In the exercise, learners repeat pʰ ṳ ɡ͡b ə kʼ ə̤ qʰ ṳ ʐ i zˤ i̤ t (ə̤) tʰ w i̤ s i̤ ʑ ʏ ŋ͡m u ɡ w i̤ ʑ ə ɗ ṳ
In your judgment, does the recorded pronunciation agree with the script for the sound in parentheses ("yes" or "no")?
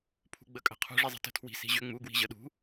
yes